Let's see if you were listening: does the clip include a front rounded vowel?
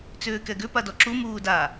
yes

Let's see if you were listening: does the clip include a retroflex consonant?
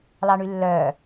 yes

